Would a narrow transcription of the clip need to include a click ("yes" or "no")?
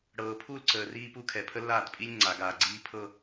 yes